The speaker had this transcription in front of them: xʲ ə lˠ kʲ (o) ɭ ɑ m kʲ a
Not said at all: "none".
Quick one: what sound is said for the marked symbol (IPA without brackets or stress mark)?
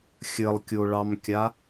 o